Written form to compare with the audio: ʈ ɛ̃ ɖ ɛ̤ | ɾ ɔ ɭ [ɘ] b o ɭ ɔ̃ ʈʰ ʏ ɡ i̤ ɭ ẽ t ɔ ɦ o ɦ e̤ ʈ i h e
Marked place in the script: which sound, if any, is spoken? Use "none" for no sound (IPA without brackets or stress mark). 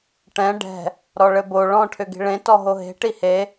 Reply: ɘ